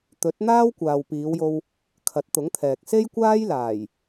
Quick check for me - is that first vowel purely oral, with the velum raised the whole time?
yes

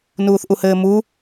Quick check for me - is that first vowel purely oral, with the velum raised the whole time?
yes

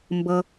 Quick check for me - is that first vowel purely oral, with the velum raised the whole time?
yes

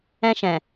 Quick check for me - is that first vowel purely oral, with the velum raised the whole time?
no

